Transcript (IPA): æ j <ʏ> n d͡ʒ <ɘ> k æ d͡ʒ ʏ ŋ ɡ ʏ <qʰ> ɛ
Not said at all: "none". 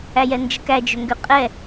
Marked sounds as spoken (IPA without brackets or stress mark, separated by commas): ɛ, ɘ, qʼ